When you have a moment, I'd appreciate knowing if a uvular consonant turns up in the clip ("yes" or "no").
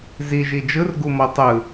no